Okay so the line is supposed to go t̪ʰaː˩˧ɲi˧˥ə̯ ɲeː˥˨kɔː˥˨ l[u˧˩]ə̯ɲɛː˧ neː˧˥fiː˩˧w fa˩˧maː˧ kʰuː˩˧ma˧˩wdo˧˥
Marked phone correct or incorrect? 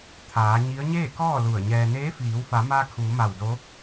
correct